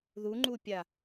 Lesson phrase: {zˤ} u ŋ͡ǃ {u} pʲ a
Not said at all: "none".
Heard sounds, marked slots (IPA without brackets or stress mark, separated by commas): ð, u